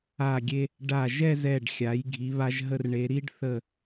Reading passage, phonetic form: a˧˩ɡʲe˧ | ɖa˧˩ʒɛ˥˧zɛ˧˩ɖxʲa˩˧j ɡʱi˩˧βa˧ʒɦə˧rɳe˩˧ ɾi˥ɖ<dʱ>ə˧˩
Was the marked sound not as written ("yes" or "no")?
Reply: yes